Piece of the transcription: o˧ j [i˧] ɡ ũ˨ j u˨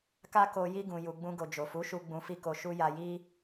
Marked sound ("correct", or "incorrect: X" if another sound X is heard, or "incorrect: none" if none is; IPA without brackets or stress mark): correct